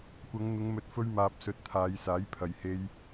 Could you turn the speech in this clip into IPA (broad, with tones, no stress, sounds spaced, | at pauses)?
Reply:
kʷ ɐ˨˧ ŋ n̪ ʊ˨˧ ŋ m ɵ˨˥ t̚ f ɵ˧ ɥ m aː˨ p̚ s ɵ˨˥ t̚ t̪ʰ aː˨˧ j s aː˨˥ j pʰ ɐ˨ j h e˧ j